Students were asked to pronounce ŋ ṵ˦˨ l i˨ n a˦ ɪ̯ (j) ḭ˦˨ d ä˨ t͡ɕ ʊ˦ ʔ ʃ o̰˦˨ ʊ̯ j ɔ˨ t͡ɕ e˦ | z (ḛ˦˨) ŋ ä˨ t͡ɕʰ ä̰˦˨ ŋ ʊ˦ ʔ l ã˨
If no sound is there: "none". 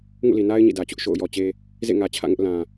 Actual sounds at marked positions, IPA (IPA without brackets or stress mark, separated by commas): ɲ, ḛ˦˨